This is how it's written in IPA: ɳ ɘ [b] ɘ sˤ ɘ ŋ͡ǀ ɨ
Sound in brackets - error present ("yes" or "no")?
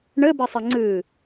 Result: no